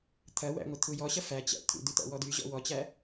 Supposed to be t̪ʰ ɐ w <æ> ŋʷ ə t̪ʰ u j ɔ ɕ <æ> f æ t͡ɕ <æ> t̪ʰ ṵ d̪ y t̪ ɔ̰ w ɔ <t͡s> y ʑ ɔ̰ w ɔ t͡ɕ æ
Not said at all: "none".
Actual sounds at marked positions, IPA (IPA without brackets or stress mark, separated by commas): æ̰, ɐ, æ̰, d̪